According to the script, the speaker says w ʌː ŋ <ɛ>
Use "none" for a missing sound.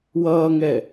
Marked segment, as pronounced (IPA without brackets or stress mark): ɛ